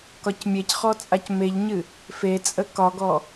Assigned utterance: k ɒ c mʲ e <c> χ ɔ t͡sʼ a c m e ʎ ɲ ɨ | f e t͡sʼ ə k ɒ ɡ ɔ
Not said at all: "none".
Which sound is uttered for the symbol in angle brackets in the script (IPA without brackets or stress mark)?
c